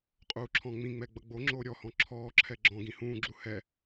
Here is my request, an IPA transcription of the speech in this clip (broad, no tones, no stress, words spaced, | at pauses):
qʼuːǁʰɔ̃ŋ͡mĩŋ͡mɛ ɡ͡bʌɡ͡boŋ͡ǁoː ɾʲɔhɔ̃ ǁʰɔːǁʰɛ ɡ͡ǁɔ̃ ɡĩhũːɡ͡ǁu hɛ